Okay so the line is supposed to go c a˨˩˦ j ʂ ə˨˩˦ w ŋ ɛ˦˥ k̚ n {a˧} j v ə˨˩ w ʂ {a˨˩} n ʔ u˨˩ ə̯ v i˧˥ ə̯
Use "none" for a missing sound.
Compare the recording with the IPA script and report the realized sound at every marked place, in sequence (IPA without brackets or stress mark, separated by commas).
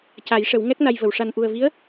a˧, a˨˩